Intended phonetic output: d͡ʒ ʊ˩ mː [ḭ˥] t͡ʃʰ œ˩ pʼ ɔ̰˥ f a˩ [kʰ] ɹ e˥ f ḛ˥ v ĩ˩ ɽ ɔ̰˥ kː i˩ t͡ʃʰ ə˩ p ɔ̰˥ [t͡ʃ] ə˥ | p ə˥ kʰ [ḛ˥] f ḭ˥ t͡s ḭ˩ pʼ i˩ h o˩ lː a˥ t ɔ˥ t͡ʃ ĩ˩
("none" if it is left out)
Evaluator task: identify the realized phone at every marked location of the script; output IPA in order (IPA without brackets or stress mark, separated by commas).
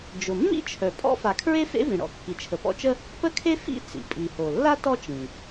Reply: ḭ˥, kʰ, t͡ʃ, e˥